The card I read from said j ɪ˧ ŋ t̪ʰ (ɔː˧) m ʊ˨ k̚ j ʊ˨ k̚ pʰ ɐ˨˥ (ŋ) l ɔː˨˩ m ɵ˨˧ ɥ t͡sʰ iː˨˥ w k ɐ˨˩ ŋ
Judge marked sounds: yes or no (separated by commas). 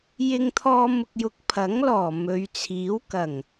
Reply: yes, yes